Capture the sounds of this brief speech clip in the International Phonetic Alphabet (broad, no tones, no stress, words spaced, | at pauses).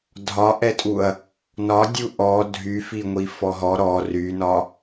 dʱɒʔɛtʼuɐ̯ | nɒdʲu ʔɔ dʱyfiŋʷi fɔɦɔ ɾɔ rynɒ